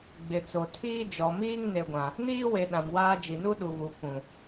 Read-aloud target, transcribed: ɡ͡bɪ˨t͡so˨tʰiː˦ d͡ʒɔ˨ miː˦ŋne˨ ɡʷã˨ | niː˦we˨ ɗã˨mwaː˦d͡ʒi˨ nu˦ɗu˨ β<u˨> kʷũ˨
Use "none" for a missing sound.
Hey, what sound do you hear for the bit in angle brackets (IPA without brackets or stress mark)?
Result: u˨